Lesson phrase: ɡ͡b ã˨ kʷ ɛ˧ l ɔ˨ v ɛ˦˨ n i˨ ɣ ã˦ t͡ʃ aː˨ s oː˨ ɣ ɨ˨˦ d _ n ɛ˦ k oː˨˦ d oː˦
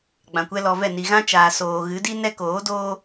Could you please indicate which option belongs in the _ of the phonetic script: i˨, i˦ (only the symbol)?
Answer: i˦